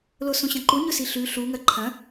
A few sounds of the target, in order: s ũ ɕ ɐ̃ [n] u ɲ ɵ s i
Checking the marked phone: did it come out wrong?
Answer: yes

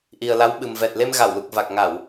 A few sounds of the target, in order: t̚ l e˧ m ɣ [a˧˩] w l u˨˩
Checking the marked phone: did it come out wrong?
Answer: no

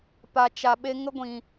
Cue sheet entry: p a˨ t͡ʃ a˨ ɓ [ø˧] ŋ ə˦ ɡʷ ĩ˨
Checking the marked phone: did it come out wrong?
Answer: yes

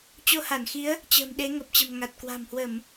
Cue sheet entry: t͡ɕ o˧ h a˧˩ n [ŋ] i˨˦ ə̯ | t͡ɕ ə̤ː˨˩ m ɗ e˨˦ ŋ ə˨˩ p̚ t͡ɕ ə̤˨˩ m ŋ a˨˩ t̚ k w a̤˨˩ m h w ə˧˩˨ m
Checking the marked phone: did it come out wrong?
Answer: yes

